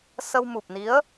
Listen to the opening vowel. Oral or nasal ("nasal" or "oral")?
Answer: oral